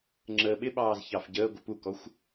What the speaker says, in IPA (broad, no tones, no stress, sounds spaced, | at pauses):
ŋ͡ǁ əː ɓ ɪ ɓ ɑː z ç ɑ f ɟ əː ɡʷ ə p u k ɔ xʷ